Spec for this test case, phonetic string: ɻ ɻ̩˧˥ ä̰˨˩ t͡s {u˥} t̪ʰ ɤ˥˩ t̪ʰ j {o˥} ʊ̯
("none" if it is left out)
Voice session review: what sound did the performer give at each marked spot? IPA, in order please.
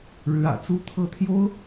u˥, o˥

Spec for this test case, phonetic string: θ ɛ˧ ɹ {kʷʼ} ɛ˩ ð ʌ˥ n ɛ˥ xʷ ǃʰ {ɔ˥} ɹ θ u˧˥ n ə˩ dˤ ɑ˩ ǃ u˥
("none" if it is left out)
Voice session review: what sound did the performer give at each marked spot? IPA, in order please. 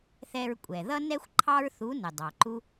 kʷʼ, ɑ˥

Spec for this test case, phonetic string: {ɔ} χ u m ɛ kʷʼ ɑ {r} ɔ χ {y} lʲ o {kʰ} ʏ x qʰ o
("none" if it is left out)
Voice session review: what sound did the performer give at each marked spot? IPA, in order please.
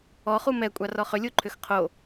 ɔ, r, ʏ, ǃʰ

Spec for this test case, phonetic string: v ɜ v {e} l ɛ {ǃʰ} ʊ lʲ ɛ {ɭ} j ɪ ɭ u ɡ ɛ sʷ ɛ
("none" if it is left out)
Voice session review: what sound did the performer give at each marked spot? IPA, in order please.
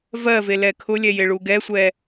e, kʰ, none

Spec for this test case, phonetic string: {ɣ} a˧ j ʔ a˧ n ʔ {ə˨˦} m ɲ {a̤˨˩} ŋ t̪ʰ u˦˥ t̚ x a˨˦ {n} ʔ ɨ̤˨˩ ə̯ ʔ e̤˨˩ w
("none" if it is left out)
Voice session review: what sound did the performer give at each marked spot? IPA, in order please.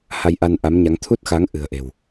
h, a˨˦, a˨˦, ŋ

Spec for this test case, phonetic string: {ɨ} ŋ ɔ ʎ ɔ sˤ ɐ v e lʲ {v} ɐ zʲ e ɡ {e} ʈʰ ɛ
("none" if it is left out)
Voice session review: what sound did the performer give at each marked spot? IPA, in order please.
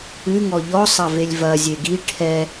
ɨ, v, i

